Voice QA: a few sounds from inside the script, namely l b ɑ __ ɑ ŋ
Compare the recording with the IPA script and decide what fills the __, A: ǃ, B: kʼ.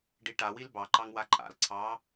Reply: A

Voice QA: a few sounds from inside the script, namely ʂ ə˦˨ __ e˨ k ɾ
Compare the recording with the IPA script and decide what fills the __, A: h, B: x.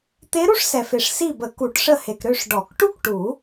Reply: A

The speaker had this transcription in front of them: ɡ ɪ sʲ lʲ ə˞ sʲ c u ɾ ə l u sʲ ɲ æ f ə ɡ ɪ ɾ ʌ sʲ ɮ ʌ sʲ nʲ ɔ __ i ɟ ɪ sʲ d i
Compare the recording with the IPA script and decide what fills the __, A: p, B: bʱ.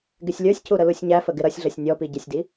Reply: A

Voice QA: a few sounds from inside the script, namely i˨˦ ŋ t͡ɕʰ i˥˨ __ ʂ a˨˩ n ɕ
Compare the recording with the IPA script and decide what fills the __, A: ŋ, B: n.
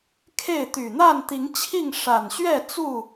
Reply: A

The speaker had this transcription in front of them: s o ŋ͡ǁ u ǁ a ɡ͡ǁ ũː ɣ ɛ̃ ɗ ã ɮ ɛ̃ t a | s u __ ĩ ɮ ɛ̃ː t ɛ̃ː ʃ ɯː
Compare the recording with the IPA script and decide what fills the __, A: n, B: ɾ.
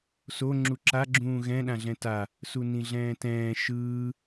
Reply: A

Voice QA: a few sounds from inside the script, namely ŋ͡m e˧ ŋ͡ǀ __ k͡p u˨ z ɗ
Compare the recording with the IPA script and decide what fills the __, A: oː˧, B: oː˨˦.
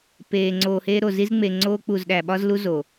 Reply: A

